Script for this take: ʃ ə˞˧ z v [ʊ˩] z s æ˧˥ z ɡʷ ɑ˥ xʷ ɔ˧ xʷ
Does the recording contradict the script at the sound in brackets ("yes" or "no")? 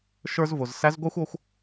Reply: no